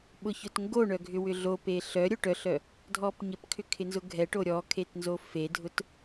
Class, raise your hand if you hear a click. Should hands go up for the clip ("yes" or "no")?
no